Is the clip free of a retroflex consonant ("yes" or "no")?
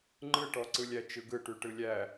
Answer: no